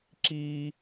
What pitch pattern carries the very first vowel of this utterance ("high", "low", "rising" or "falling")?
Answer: high